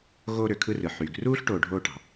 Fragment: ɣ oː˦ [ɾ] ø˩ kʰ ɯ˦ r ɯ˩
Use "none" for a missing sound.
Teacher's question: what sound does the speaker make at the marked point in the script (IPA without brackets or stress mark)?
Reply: ɾ